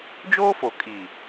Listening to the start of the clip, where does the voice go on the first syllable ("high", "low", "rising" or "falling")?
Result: high